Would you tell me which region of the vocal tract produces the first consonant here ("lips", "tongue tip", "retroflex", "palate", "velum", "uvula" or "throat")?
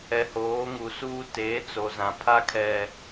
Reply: throat